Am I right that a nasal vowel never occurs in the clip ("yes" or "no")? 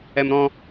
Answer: no